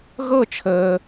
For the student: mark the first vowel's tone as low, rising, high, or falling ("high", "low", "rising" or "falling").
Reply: falling